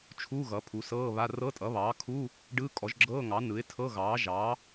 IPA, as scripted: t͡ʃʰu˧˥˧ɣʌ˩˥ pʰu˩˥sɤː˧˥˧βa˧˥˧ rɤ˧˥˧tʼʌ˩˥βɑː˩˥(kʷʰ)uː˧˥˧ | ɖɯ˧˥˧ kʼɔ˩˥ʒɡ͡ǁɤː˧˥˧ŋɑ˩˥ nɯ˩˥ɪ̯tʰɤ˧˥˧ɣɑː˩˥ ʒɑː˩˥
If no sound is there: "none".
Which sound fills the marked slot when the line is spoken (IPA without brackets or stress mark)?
kʰ